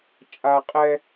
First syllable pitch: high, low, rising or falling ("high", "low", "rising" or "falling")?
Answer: high